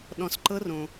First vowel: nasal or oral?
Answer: nasal